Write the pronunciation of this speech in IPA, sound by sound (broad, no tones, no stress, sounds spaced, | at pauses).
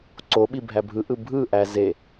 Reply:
ǀ o ɓ i bʱ æ bʱ ɯ ʔ ɯ bʱ ɯ ʔ æ z e